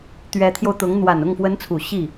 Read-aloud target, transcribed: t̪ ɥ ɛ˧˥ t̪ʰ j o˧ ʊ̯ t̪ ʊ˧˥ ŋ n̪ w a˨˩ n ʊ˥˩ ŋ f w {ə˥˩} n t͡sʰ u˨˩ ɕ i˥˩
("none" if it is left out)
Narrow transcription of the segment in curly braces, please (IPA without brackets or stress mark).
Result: ə˧˥